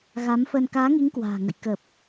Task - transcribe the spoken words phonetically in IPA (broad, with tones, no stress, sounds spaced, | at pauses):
ɣ a˨˦ m f ə˧ n k aː˨˦ ŋ i˨˦ ŋ k w a̤ː˨˩ ŋ ə̰˧˨ j k ə˨˩ p̚